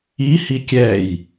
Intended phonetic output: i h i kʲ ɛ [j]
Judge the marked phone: correct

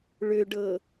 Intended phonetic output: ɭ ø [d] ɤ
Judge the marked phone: incorrect: ɖ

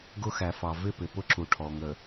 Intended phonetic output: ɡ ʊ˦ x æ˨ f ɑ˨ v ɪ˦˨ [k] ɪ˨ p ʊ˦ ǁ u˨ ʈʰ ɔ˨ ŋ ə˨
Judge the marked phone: incorrect: p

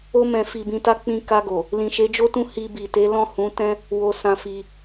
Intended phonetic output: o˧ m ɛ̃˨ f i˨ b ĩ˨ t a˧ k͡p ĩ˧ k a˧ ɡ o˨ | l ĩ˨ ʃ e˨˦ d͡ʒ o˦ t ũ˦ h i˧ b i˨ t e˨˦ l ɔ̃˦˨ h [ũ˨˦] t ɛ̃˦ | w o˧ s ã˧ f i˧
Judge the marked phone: correct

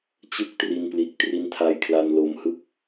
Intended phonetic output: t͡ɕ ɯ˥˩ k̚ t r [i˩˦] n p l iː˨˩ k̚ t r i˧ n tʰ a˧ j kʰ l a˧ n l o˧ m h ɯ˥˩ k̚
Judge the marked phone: incorrect: i˧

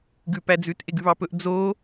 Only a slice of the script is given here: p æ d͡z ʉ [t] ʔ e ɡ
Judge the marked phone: correct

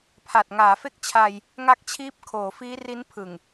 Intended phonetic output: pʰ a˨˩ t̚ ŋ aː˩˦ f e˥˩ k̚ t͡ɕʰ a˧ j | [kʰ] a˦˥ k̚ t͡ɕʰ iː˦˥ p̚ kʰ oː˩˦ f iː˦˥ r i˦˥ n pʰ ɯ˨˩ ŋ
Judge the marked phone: incorrect: ŋ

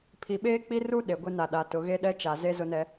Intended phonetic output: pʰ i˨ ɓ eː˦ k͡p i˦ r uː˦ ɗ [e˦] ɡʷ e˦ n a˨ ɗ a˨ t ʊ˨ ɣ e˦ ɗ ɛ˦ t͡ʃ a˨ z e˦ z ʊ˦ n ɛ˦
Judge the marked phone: incorrect: e˨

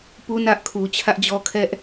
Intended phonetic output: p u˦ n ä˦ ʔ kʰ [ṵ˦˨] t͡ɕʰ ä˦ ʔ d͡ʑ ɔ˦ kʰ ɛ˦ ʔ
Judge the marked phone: incorrect: u˨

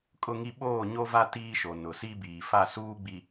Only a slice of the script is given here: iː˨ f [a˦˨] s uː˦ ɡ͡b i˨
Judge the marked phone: correct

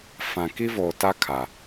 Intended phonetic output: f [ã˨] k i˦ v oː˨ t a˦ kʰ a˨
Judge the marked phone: correct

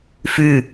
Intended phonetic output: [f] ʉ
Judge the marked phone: correct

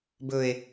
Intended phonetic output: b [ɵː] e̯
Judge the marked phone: incorrect: ɵ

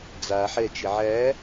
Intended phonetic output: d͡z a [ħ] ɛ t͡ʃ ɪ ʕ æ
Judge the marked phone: correct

